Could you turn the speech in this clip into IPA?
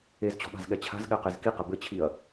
e z t͡ɕ ɔ̤ ɓ a̤ z ɠ ɛ t͡ɕʰ a̤ z ɠ ɛ q e z k i q ɘ b ɘ t͡ɕʰ i ɐ̯

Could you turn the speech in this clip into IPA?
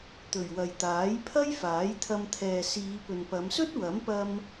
t̪ ɵ˨˩ ɥ w ɐ˨ j t̪ aː˨˥ j pʰ ɐ˥ j f aː˨˥ j t̪ʰ ɐ˧ m t̪ʰ ɛː˨ s iː˨˧ p ɵ˨ n p ɐ˨˧ m s ɵ˥ t̚ w ɐ˨˥ m p ɐ˧ m

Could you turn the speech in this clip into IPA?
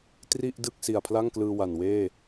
t r i˥˩ ʔ d ɯ˥˩ k̚ s i˨˩ a̯ pʰ l a˥˩ ŋ k l ɯː˧ w a˨˩ n w eː˥˩

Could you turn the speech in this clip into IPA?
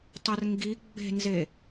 tˤ ɐ r ŋ ɡ i ɡ͡b e̤ n z e

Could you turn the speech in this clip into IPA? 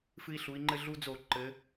f ɨ˧ i̯ ɬ u˩˧ i̯ ŋ͡ǃ ɘ˧ ɮ u˧ d͡z o˧˩˧ ǃ ɘ˩˧

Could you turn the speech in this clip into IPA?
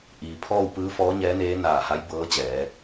ʔ iː˩ pʰ ɔː˥˨ w p ɯː˧˥ f ɔː˧˥ ɲ ɛː˧˥ n eː˧˥ n aː˧˩ h a˧˥ j b ɤː˧˥ t͡ɕ ɛː˩˧

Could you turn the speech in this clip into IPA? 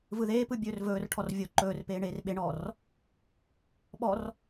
v ɯ ð eː p ɯ bʲ ɵː r v ɵː r ʈʰ ɔ r vʲ o ǃ ɵː r p eː ɳ eː r ɓ e ɳ ɔː r | ɓ ɔ r

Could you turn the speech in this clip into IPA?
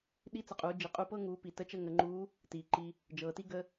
ɗ i˧˥ t͡s ə˩ qʼ uː˩˧ d͡ʒ i˩ qʼ u˧ p ɤː˥ ŋ uː˩˧ p i˩ t ə˧˥ t͡ʃ ə˧ ŋ ə˩˧ ŋ͡ǃ uː˧˥ | t iː˩ ǃ i˧ | d͡ʒ ɤː˩ t i˥ ɡ ə˧

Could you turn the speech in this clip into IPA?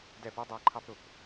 d ɛ˥˨ p u˥ dˤ æ˥˨ ǃʰ ɑ˥ p ɾ ʊ˨ p

